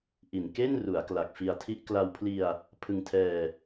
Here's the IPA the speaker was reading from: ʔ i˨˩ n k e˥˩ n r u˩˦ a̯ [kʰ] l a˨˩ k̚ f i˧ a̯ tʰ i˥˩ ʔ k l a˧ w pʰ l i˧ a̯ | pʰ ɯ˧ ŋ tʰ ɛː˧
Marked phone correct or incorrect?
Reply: incorrect